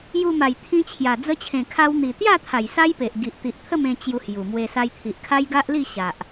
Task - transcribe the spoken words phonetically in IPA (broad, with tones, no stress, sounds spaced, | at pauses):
j u˧ m a˨˩ j t̪ʰ ĩ˧ t͡ɕʰ j a˨˩ d͡z ə˧ t͡ɕʰ ẽ˨˩ kʰ a˧ w n̪ i˨˩ t̪ j a˥˧ t̪ʰ a˨˩ j s a˦ j p e˨ ʔ ɡ i˨ ʔ t̪ i˨ ʔ t̪ʰ ə˥˧ m ẽ˧ t͡ɕ j u˧ h j u˨˩ m w e˧ s a˧ j t̪ʰ i˨ ʔ kʰ a˦ j ɡ a˦ ʔ l i˥˧ ɕ a˨ ʔ